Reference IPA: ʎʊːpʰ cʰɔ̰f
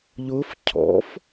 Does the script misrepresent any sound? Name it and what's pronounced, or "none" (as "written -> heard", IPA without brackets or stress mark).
pʰ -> f